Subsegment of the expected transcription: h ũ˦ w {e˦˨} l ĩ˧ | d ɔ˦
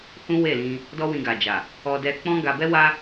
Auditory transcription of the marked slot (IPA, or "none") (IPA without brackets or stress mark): e˦˨